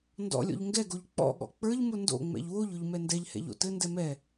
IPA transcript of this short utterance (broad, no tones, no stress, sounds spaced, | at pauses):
n d ɔ̰ lʲ ɔ̰ ʎ ŋ ɡ ɛ ɡ o ʎ k͡p ɔ̰ ɠ ɔ̰ k͡p ə˞ ʎ m ʊ n d o̰ ŋ͡m ɛ̰ ʎ w o ʎ ʊ ʎ m ɛ n d ɛ ʎ h ɛ̰ ʎ o̰ t ɘ n d ɛ m ɛ